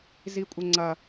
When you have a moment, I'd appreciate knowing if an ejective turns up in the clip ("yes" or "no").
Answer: yes